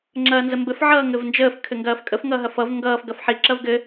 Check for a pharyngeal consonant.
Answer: present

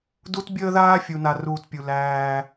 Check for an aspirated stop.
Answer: absent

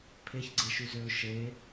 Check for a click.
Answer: present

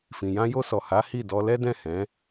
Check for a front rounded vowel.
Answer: absent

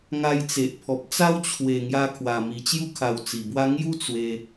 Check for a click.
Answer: absent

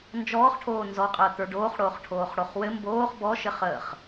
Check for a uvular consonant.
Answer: present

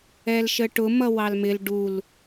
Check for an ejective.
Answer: absent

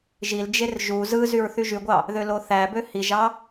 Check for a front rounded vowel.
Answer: present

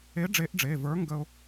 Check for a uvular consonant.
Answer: absent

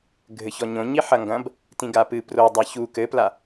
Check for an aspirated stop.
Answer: absent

